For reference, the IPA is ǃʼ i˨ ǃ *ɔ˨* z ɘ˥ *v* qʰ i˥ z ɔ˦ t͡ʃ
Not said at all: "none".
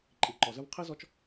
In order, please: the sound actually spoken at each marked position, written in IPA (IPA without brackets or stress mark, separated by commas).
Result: ɔ˨, v